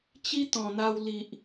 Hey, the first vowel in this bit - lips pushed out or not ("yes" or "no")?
no